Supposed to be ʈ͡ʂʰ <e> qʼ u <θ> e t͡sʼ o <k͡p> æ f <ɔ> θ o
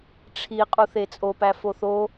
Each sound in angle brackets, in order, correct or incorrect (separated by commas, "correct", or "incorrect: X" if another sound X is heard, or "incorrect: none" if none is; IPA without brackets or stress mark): incorrect: i, correct, incorrect: p, incorrect: o